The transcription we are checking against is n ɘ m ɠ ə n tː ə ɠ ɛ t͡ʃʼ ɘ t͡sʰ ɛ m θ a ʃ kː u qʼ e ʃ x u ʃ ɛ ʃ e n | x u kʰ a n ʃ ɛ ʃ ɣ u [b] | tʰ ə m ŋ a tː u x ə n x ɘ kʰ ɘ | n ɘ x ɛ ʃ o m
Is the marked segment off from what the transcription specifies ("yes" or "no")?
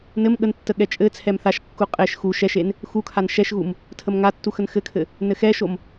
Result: yes